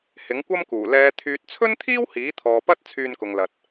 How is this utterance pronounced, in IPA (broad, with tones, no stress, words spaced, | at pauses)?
hɪ˨˥ŋkʷɐ˥mkuː˨˩ lɛː˨˧ t̪ʰyː˨t̚t͡sʰɵ˥nt̪ʰiː˥w hiː˨˥t̪ʰɔː˨pɐ˥t̚ t͡sʰyː˧nkʊ˨ŋlɐ˨t̚